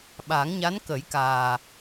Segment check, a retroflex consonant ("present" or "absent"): absent